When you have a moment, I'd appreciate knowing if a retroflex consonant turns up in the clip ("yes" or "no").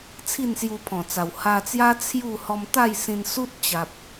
no